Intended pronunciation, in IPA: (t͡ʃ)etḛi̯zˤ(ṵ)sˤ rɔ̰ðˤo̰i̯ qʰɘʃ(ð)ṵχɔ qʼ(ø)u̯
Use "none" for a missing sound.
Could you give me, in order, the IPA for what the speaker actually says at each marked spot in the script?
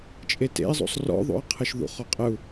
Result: t͡ʃʼ, o̰, ð, ɘ

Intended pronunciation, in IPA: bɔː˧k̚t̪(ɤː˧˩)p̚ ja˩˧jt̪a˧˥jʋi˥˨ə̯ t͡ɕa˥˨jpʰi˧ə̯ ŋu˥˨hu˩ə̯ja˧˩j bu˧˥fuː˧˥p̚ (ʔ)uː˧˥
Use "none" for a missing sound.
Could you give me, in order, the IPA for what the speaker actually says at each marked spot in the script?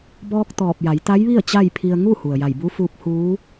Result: ɔː˧˩, h

